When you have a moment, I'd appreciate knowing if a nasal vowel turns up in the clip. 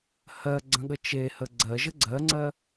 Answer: yes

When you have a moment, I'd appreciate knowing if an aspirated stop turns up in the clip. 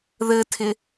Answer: yes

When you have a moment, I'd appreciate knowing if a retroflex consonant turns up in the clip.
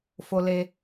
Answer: no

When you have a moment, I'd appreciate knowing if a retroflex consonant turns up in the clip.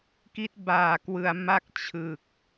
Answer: no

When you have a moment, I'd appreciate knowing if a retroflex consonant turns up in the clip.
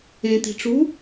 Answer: yes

